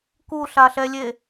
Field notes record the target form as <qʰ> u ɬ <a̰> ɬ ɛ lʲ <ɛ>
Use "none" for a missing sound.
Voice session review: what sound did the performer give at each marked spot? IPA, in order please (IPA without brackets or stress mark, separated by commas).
k, a, e